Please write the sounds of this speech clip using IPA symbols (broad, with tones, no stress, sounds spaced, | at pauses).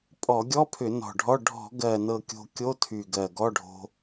pʼ ɔ˧˩˧ ɡʲ ɔ˧˥˧ pʰ ʏ˧˩˧ n ɔ̤˨˩ ɖʱ ɔ˧˥˧ ɖʱ ɔ̤˧˩˧ ɡ ɜ˨˩ n ɤ˨˩ kʲ o̤˧ kʲ o˧˥˧ tʰ y˨˩ ɡ ɜ˨˩ ɡ ɔ˧˥˧ ɖʱ o̤˧